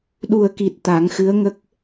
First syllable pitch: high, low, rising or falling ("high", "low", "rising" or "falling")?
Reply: low